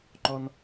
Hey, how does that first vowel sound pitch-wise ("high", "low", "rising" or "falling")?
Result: high